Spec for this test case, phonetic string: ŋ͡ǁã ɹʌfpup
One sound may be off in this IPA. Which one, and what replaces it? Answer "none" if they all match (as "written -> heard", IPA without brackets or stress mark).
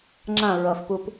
none